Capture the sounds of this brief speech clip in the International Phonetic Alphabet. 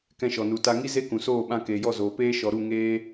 k ɛ̃˧ ʃ ɔ˨ n u˨ t a˧ ŋ i˦ z e˦ k ũ˨ s oː˦˨ ɓ ã˧ k eː˨ j ɔ˦˨ z oː˨ p eː˦ ʃ ɔ˨ ɾ u˦˨ ŋ eː˧

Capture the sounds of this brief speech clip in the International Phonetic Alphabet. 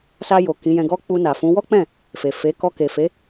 s a˧ j o˨ k ĩ˨˦ j ɛ̃˧ ɡ ɔ˦ k͡p u˧ n a˨ f ũ˨˦ w ɔ˦ k͡p ɛ̃˦˨ | f e˨ f e˨˦ k ɔ˧ k e˨ f e˨˦

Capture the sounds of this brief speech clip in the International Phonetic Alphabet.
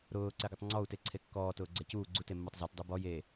ɾ ʊː ǀ ɛ ɡ ʊ tˤ ŋ͡ǀ ɔ u̯ t e ǀʰ e kː ɔː t ʊː ɡ͡ǀ ɛ c uː ɡ͡ǀ u t e mː ɔ tˤ z ɛ t dˤ e b ɔ j e

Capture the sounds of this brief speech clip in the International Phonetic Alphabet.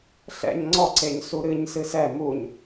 ɬ ɛ̰ ɲ ŋ͡ǀ ɔ ǀ e ɲ s u ɾ ɨ ɲ s ɨ s ɛ m u ɲ

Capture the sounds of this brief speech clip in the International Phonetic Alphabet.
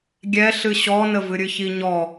ɡʲ ɛ ɬ ɨ ɕ ɔ n ə v ɨ ɾʲ ɨ ç i ɲ ɔ

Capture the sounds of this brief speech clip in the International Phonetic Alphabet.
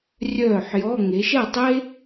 rʲ œː˥˨ ħ j ɔ˧˥˧ ŋ e˩˧ ʃ ɛ˥˨ tˤ e˥

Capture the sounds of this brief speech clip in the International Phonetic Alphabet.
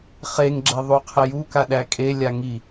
χ e ŋ ɡ͡ǁ ɛ ðˤ u qʰ ɛ j u k a ɗ æ kʼ e lʲ a ŋ i

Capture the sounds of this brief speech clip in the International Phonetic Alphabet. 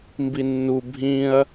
m b i nː u bʱ ĩ ɐ̯

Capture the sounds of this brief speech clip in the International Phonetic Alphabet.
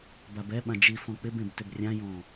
b a b ɛ ɓ ã d͡ʒ i f ɔ̃ k͡p ɪ b ẽ b t ʏ b rʲ ã j ɔ̃

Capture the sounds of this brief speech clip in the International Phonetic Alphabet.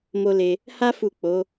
m o˦ l e˧ | h a˦ f u˦˨ k͡p o˨˦

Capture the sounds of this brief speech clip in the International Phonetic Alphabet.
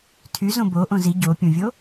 tʰ y z õ b o ʔ õ z i ɟ o pʲ õ vʲ o

